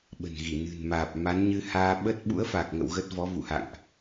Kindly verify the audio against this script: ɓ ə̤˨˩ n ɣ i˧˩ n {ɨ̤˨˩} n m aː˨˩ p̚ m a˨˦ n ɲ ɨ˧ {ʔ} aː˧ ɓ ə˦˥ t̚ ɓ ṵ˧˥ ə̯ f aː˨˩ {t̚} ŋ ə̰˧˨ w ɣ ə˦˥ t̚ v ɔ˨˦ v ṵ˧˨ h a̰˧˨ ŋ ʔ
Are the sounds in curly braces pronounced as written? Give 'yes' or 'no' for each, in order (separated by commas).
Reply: yes, no, no